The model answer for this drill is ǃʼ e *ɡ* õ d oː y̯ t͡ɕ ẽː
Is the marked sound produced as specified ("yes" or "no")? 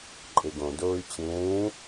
yes